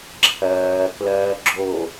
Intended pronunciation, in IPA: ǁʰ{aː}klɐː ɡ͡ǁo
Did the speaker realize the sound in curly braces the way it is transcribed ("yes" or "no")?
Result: no